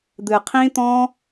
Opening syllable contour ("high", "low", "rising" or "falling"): low